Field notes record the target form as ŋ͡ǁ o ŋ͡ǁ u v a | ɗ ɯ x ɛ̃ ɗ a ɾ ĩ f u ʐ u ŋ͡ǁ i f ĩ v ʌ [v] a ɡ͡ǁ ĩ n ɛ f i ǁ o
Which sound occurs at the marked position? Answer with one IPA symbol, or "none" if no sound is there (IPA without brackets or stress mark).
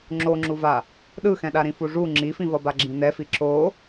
b